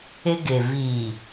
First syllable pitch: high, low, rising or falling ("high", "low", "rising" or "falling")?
high